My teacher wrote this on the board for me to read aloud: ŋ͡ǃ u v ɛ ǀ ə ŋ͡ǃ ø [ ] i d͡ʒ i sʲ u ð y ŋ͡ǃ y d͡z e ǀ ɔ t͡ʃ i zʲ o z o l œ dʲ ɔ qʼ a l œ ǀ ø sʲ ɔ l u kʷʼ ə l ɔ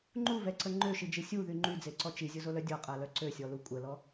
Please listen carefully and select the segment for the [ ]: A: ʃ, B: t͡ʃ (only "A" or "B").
A